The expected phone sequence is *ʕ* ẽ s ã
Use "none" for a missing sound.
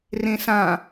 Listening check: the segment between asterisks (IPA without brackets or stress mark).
r